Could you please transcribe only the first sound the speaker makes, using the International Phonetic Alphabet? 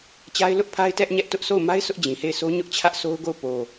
t͡ɕ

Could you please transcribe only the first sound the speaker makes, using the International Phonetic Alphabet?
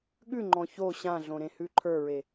ɠ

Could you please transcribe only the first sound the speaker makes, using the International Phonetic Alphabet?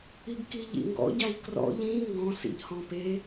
i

